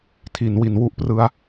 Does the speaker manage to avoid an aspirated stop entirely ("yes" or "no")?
no